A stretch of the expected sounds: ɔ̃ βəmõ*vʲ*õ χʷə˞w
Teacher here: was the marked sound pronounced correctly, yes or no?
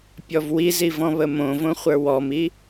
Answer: no